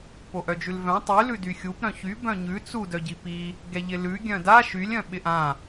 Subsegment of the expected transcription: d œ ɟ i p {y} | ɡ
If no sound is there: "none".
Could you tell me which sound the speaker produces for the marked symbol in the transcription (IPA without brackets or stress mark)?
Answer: i